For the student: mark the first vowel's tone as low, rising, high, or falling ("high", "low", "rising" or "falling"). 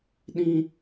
high